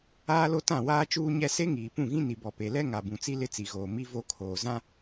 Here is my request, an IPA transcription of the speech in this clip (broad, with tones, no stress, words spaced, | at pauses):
aː˦lo˦tã˦˨ waː˦t͡ʃuː˦ɲɛ˦ se˦ŋiː˨pũ˦˨ɣĩ˦ ni˨bɔ˨ pe˨lɛ˦ ŋa˨bũ˨t͡si˦ lɪ˦t͡si˨ɣoː˨ mi˦vo˦˨kʰoː˨ zã˦